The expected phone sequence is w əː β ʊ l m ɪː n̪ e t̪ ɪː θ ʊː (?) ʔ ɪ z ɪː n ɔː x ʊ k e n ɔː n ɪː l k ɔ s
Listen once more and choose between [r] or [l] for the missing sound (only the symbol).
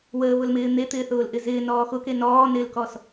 l